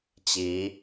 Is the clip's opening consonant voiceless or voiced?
voiceless